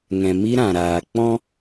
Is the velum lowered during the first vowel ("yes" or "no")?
yes